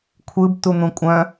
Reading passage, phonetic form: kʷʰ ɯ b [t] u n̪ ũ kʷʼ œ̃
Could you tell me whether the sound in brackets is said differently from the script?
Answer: no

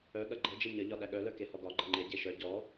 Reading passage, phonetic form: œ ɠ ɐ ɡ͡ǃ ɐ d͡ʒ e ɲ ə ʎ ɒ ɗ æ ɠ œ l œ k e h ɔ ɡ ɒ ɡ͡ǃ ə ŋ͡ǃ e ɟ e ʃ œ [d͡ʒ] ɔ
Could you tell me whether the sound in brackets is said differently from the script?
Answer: yes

